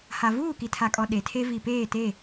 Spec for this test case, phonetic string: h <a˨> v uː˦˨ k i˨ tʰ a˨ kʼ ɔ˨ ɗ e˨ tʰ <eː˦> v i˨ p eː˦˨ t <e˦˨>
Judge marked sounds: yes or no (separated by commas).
yes, no, yes